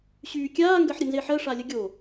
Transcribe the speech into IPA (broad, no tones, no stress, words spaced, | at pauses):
ɕyːkʲaː ŋɡɜħɾʲənzeħɜ ʂalʲəɡʲo